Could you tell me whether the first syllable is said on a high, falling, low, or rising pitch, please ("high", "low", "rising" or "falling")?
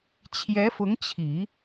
rising